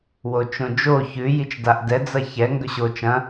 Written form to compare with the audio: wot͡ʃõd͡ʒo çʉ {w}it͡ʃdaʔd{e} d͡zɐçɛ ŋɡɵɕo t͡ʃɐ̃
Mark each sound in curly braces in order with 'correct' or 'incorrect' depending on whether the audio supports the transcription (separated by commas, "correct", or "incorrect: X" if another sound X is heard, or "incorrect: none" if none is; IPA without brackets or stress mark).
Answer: incorrect: j, incorrect: ɛ